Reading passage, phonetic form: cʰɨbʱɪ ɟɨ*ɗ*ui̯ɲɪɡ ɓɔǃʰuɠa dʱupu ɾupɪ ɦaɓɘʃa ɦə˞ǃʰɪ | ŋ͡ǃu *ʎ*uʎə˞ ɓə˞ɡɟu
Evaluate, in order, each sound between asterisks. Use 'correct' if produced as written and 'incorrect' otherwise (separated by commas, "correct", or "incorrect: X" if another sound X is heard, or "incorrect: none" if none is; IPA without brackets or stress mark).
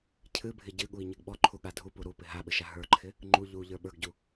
incorrect: ɠ, correct